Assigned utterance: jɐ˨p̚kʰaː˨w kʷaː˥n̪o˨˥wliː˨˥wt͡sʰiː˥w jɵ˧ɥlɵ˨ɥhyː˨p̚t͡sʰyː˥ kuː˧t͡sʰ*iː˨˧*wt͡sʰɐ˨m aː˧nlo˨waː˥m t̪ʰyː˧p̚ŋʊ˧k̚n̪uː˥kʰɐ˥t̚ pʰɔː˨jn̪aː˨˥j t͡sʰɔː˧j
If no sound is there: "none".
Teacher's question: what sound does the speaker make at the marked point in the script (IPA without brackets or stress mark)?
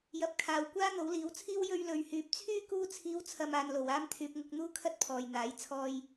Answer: iː˨˧